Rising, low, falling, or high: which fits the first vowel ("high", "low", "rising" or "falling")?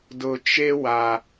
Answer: low